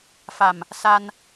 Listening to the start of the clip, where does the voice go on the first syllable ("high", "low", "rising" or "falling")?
low